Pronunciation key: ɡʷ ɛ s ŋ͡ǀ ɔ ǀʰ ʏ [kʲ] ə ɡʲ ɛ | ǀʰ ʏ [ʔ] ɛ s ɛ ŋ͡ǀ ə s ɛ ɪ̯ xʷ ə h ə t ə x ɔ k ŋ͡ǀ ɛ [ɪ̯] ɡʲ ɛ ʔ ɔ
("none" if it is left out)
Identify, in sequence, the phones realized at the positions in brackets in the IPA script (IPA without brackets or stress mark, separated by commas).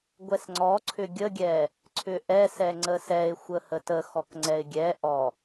ɡʲ, ʔ, ɪ̯